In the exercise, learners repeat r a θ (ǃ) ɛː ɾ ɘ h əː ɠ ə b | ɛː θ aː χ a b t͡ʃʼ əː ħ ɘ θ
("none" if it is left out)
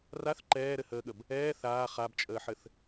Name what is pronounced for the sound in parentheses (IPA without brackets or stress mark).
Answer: ǃ